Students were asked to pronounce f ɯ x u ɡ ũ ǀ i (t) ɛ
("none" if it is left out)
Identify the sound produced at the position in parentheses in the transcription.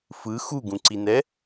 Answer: n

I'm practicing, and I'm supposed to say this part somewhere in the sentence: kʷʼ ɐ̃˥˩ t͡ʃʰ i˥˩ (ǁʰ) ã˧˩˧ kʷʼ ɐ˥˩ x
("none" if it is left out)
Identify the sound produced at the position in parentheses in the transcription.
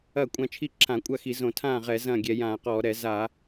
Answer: ǁʰ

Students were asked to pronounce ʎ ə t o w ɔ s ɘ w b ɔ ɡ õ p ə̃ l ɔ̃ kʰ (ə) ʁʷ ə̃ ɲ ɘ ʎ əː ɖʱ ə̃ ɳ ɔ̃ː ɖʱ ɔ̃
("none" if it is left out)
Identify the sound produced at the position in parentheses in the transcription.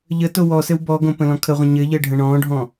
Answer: ə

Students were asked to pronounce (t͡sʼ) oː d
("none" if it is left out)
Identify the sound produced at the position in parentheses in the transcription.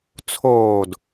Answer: t͡sʰ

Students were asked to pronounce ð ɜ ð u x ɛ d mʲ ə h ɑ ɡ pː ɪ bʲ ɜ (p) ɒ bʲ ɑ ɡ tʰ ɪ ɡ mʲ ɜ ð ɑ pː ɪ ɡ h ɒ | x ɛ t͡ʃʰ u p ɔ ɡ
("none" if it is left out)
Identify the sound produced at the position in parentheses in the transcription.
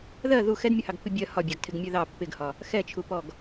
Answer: h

